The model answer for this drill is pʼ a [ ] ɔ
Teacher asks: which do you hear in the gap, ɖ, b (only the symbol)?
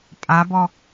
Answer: b